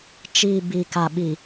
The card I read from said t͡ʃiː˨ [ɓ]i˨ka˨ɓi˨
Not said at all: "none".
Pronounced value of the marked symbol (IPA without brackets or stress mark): b